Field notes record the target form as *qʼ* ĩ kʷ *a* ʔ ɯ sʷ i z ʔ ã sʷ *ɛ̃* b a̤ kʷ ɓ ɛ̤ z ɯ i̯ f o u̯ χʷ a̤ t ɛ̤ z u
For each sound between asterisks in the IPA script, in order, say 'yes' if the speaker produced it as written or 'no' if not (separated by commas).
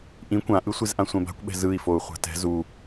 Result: no, no, yes